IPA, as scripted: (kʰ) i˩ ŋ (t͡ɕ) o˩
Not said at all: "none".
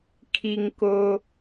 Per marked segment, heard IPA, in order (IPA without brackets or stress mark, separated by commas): kʰ, k